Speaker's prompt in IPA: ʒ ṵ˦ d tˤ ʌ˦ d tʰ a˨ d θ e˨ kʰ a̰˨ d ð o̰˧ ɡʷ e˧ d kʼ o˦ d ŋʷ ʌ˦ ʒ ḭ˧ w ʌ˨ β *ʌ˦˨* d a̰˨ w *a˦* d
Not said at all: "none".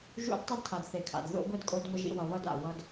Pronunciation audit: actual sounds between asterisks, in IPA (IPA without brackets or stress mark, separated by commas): ʌ˦˨, ʌ˦